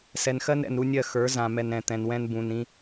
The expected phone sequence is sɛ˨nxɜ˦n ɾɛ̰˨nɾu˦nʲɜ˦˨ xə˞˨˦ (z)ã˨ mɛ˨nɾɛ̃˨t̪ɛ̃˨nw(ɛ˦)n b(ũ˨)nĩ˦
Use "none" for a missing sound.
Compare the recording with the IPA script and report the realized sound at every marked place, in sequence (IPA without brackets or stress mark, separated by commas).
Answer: z, ɛ̃˦, ũ˨